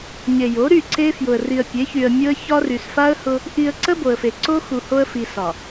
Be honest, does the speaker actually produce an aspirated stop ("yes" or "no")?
no